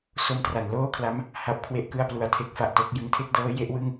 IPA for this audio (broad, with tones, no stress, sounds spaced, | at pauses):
s o˧ m t r a˩˦ n l oː˥˩ kʰ l a˦˥ m | h a˦˥ p̚ kʰ w e˥˩ ʔ k ɯ˥˩ a̯ p l u˨˩ a̯ tʰ e˦˥ k̚ f a˨˩ ʔ t o˥˩ k̚ j ɯ˧ ŋ tʰ e˥˩ k̚ d ɤː˦˥ j e˦˥ ʔ w ɯ˥˩ ŋ